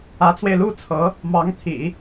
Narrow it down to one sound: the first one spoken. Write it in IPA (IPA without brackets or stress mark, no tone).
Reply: ä